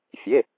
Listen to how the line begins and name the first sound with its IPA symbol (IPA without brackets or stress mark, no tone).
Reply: fʲ